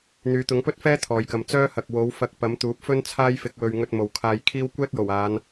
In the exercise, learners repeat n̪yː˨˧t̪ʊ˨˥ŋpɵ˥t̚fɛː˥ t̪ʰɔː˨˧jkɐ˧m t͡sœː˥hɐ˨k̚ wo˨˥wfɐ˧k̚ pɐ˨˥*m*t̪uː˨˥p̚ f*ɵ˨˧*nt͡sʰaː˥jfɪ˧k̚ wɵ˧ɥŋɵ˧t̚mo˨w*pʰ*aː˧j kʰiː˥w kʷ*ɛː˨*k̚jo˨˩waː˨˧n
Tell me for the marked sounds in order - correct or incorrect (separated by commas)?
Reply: correct, incorrect, incorrect, incorrect